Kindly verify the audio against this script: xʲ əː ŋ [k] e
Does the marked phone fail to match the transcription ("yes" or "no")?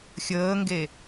yes